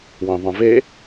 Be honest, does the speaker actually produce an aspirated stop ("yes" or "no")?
no